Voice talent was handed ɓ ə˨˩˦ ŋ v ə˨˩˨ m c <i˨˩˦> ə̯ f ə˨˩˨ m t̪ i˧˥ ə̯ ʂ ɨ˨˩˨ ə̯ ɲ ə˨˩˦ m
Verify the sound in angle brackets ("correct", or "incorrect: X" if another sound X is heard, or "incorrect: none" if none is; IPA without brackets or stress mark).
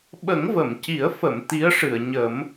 correct